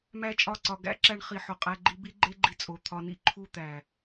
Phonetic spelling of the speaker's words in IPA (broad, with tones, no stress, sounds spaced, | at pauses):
m æ˦ t͡ʃʼ ɒ˦˨ ǀ ɒ˧ ɡ æ̰˦ ǁ æ˦ ɳ χ i˧ ħ o˨ qʼ æ˦ ɡ͡ǃ i˦ b i˦ ɡ͡ǃ e˦ ɡ͡ǃ i˧ t͡sʼ o˨ t̪ʰ ɒ˧ n ḭ˦ ǃʰ u˦˨ t̪ æ˨